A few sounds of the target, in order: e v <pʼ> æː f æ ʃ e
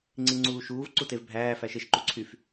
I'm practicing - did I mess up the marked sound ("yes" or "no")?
yes